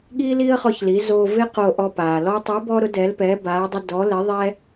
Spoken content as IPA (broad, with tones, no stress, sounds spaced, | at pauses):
ɠ iː˥ l iː˥ ə̯ χ ɔ˧ ç l i˩˧ z o˧ v ɪ˥ q o˧ ʔ ɔ˧ p aː˩ l ɔ˥ tˤ i˧˥ b ɔ˥ ɾ ʊ˧˥ d ɛ˧˥ l p ɛː˧˥ b aː˧˥ dˤ ɪ˥ d ɔ˧˥ l ɪ˧˥ ðˤ ɛ˥